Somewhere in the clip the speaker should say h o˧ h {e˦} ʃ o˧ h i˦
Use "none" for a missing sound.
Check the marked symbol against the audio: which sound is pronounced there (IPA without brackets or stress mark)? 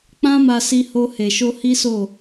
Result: e˨